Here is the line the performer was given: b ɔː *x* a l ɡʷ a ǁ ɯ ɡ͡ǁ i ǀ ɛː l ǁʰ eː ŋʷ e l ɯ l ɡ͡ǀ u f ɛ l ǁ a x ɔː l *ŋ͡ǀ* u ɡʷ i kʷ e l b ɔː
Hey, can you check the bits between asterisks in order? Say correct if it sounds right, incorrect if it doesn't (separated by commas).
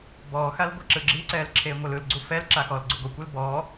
correct, incorrect